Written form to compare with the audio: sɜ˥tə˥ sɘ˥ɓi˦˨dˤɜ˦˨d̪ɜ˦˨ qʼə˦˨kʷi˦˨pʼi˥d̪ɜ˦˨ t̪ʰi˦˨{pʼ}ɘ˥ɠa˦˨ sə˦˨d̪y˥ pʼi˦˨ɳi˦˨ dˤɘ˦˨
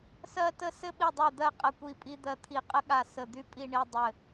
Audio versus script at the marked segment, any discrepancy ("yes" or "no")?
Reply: yes